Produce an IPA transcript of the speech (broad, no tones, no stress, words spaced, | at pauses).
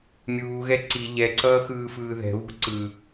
mʲuːɣɛ ǀi ʎɛǀʌːxɯːfɯː ðɛ̤βṳ ǀɯ